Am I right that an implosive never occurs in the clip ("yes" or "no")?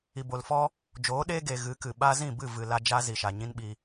no